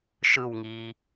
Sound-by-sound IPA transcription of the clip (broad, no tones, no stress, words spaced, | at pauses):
ʃɯwŋiː